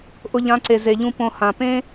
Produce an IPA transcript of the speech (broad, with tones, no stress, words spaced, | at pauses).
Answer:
ʔʊ˧ʎã˨˦ǀe˨ ze˨ʎũ˧ põ˧ hã˨ pẽ˦